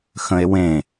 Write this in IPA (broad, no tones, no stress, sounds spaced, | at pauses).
x ə̃ e̯ w ẽ